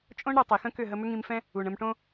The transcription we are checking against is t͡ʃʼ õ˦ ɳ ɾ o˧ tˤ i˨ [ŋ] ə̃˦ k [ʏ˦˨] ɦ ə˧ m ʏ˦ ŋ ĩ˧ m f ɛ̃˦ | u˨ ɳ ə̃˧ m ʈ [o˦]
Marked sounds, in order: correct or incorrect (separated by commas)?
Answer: incorrect, correct, incorrect